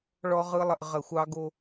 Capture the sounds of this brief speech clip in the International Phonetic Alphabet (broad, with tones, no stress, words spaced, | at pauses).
ɭɔ˦ʁɯ˦lˠə˨ʔ ʁə˨xʷɑ˦ɡo˦